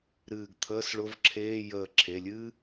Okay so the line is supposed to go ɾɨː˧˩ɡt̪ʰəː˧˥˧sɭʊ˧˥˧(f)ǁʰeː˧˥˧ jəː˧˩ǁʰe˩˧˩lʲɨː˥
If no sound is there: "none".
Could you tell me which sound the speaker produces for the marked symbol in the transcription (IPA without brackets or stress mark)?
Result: v